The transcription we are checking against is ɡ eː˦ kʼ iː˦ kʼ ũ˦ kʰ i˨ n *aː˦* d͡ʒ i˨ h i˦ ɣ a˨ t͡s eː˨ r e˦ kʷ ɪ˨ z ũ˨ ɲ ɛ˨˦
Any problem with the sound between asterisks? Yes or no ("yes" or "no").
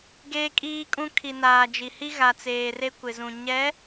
yes